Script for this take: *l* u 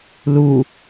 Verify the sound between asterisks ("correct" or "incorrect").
correct